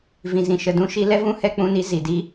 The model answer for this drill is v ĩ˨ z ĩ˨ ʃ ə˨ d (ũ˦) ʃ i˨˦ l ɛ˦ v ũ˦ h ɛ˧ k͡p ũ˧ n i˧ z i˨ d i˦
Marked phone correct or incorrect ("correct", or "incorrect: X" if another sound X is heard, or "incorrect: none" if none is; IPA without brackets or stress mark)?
correct